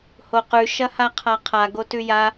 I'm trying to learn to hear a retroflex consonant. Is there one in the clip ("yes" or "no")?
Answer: no